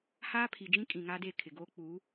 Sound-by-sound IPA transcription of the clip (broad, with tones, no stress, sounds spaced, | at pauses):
h aː˦ pʰ i˨ d͡ʒ ĩ˦ kʼ ĩ˨ ŋ a˦ d e˦˨ kʰ ɪ˨ ɡ oː˦ k͡p uː˨˦